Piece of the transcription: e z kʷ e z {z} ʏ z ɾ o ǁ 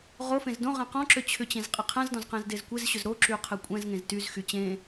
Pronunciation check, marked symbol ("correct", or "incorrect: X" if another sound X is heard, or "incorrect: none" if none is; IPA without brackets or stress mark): incorrect: ɕ